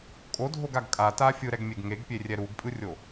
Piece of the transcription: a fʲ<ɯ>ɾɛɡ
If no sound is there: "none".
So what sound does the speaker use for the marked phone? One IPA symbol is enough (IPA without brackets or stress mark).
ɯ